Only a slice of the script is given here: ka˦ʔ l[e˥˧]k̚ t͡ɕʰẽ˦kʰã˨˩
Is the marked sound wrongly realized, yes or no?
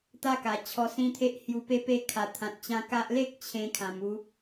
yes